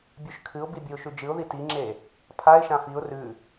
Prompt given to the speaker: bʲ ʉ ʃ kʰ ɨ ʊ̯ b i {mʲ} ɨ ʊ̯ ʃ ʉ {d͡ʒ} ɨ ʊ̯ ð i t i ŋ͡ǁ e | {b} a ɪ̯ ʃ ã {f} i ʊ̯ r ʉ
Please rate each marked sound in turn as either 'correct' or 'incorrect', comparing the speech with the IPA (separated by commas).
incorrect, correct, incorrect, correct